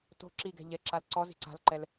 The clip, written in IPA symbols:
t o̤ ǁ i ɡ ɛ̤ ʎ ɛ ǁ a l ǀ ɔ z i̤ ǀ a̤ l ǃ ɛ l

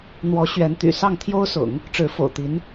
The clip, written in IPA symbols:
n̪ w ɔ˧˥ ɕ ɥ ɛ˧˥ n t̪ y̰˨˩ s ɑ˥˩ ŋ t̪ʰ j o˥ ʊ̯ s ʊ̰˨˩˦ ŋ | ʈ͡ʂ ɻ̩˧˥ f o̰˨˩ ʊ̯ t̪ i˧˥ n

